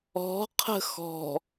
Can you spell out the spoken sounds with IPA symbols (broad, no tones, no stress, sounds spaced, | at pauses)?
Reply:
ɔ̤ qʰ ə̤ x ɔ̤